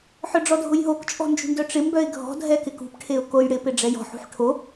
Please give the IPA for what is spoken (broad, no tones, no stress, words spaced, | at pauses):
ħœɖ͡ʐɔdʱʊjɦok t͡ʃʼɔ̤nd͡ʒṳɳdœʈ͡ʂɪ mbœɪ̯ɡʱɔ̤ dʱɛkɪkṳp ʈʰeʊ̯kojɽɪ pɪɖ͡ʐɛjɔ̤ ħṳħʈʰo